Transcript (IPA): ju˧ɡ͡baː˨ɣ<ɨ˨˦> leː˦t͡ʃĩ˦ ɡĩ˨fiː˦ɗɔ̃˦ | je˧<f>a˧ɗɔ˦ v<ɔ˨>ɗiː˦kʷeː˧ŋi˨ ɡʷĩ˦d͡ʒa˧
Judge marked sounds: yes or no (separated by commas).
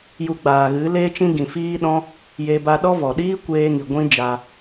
yes, no, yes